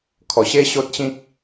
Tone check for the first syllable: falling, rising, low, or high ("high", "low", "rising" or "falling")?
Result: low